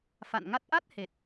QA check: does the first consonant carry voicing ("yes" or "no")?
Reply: no